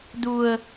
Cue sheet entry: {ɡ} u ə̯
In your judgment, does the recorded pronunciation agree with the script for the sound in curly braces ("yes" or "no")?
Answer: no